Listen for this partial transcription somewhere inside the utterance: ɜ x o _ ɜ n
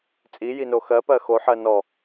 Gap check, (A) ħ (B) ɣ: A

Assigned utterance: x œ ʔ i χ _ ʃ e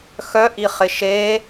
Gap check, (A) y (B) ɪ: B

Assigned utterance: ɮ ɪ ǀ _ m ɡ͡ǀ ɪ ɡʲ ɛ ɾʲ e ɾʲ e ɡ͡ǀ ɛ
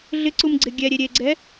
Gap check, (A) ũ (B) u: B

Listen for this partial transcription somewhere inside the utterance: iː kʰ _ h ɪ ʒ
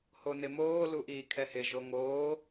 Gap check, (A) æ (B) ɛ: B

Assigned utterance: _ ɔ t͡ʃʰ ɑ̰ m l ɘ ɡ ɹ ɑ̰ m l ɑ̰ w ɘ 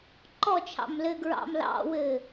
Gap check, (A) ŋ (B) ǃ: B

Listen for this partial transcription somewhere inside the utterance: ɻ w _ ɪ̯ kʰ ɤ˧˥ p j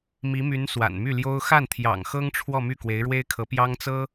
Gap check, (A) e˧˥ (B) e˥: B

